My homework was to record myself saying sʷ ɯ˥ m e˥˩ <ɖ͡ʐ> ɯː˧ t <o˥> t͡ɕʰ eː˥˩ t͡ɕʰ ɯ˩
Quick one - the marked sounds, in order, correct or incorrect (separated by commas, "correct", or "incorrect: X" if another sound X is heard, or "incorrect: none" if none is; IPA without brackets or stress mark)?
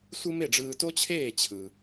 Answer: correct, correct